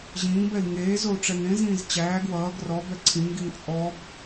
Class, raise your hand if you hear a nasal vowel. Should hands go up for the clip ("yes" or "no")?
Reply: yes